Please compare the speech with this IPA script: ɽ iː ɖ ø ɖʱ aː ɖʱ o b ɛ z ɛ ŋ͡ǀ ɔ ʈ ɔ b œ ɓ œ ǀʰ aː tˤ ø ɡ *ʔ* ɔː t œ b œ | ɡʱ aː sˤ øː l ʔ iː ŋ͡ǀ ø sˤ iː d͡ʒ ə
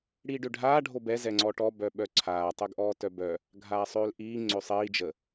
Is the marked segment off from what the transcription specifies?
no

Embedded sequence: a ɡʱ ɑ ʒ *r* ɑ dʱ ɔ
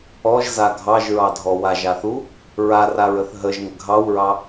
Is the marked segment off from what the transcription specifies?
yes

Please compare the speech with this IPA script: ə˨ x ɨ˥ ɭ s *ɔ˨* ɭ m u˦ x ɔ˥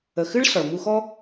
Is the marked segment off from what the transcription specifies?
yes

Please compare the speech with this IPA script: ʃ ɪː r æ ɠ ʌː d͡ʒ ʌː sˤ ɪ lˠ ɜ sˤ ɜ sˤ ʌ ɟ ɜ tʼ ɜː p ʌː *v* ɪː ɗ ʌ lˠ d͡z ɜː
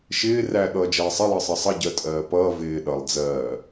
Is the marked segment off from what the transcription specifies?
no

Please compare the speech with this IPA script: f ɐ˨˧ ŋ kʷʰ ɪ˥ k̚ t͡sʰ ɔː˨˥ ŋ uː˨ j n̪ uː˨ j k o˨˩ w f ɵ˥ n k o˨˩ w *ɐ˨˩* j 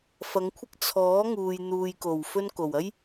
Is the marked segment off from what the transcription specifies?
yes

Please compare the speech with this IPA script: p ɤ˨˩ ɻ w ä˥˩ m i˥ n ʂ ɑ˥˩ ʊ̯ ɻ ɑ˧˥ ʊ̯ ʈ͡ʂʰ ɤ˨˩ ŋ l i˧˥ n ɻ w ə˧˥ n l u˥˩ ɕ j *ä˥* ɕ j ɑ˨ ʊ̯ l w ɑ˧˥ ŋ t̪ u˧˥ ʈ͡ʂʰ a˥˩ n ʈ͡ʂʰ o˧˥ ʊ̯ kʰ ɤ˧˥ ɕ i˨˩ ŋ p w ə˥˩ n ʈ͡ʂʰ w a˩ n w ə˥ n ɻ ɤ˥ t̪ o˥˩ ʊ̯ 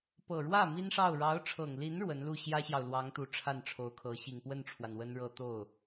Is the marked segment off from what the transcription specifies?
no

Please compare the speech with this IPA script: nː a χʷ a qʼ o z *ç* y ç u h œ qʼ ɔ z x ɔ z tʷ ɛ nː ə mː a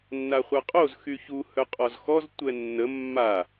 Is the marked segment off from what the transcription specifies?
yes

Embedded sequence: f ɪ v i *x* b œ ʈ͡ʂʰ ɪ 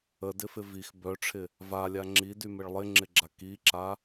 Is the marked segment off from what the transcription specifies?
no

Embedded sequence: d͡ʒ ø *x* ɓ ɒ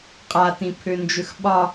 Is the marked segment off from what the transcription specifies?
no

